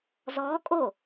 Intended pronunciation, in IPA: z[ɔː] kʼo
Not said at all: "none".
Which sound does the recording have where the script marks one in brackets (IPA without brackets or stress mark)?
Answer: ɔː